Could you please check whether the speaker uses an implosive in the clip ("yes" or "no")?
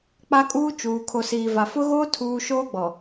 no